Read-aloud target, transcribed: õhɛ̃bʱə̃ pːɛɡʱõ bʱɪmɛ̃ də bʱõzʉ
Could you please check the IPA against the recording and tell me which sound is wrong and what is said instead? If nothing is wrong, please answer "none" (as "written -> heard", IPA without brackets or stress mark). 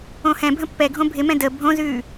none